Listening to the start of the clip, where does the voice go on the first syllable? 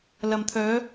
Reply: low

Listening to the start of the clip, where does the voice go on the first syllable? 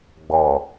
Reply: low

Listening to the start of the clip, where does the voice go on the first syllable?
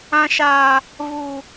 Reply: high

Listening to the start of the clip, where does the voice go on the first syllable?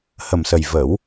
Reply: low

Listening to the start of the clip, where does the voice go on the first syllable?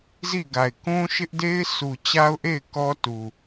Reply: falling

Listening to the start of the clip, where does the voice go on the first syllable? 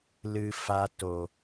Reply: low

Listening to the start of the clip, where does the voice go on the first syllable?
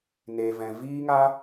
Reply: low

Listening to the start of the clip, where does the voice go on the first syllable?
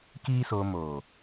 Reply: high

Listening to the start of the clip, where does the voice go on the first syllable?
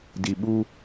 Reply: low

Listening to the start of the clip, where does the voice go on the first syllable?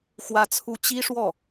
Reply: high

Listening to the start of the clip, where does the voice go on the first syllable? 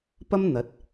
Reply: high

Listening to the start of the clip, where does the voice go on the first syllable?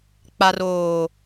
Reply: low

